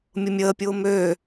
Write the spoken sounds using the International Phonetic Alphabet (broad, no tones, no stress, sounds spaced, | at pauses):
mʲ ʊ mʲ əː pʲ ʊː m ø